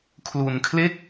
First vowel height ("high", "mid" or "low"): high